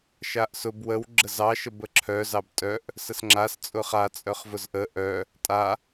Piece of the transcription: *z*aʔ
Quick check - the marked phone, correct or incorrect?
incorrect